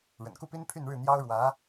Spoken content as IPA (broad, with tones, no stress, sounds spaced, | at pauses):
ɻ ə̰˨˩ n k u˥˩ p i˥ n pʰ y˥˧ n ɻ ɻ̩˥˩ n̪ j ɑ˥ ʊ̯ ɻ w ä˧˥